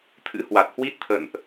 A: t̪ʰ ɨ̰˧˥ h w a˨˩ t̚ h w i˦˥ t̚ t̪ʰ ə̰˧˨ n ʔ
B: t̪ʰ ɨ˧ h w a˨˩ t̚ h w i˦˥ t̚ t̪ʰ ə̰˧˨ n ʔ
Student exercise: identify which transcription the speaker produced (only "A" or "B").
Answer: A